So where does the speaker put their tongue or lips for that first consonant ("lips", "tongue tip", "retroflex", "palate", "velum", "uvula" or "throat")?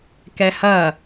velum